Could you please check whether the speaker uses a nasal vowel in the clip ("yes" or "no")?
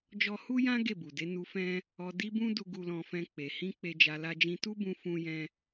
yes